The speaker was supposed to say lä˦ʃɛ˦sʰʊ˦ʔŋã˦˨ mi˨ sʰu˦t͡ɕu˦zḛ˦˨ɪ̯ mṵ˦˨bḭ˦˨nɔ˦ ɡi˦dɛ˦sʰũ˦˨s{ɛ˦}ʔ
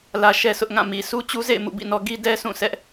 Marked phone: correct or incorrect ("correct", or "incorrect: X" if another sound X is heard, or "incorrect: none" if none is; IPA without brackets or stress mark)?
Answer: correct